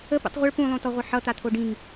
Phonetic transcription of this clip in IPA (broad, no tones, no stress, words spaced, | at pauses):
əpṵtˤ ʁʷəɭ pũlˠõtɔʁʷə ħʌt̪at̪ʰo ɖĩŋ